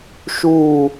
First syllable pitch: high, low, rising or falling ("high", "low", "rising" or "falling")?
falling